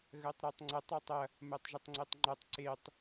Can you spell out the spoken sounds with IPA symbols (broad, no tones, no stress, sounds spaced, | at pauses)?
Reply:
ɣ ɜ tˤ ɾ ɜ tˤ ŋ͡ǀ ɐ tˤ a tˤ ɐ | m ɜ tˤ ʒ ə tˤ ŋ͡ǀ e tˤ ŋ͡ǃ ɐ tˤ ǀ e tˤ